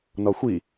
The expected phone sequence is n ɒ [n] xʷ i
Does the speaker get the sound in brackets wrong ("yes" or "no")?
yes